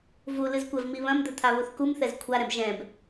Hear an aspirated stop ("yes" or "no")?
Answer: yes